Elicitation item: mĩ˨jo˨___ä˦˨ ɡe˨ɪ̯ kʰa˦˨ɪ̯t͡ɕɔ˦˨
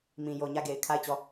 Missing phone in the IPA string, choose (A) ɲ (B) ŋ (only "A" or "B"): A